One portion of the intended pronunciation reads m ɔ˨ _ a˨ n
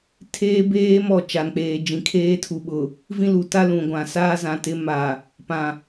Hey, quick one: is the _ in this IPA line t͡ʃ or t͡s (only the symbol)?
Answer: t͡ʃ